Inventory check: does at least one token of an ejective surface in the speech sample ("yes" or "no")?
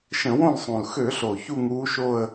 no